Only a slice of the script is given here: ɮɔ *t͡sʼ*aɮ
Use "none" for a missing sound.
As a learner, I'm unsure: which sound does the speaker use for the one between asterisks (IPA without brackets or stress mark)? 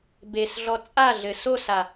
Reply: t͡sʼ